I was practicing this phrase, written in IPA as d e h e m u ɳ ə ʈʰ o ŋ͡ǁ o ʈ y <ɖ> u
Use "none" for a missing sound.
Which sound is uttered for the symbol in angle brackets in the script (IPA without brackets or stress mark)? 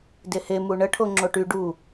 ɖ